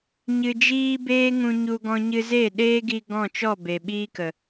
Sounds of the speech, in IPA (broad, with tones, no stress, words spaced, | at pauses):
ɲɨ˧d͡ʒiː˦beː˦ ŋũ˧ɲu˧ ɡɔ̃˦ ɲɨ˧zeː˦˨ɗeː˦ɡi˧ ɡɔ̃˦˨t͡ʃɔ˦˨ be˨ɓiː˦kə˨